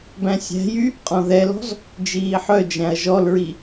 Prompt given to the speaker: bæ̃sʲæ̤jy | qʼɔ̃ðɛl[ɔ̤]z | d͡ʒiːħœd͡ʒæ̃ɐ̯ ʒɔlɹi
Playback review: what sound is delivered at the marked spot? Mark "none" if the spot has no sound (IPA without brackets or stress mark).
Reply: ɔ̤